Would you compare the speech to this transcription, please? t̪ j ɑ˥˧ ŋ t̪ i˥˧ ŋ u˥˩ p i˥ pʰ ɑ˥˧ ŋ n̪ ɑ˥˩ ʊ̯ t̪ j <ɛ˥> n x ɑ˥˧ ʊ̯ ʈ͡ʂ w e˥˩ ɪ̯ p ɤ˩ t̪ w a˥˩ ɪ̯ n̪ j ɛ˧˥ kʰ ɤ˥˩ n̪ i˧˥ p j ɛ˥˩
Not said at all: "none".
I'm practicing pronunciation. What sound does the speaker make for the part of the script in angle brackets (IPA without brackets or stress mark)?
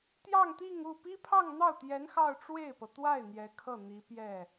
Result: ɛ˧˥